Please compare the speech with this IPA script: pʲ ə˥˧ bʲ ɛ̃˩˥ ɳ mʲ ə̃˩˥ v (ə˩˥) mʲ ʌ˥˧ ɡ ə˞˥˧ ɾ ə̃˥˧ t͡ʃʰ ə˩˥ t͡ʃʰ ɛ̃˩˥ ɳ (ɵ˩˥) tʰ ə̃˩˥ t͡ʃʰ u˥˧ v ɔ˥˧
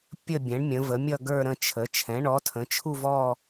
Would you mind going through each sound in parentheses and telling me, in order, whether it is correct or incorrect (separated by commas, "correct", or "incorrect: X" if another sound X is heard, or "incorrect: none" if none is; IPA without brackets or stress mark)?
correct, incorrect: ɔ˩˥